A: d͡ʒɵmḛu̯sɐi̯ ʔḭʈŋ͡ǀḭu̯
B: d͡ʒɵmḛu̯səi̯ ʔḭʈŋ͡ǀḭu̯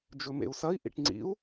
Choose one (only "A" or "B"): A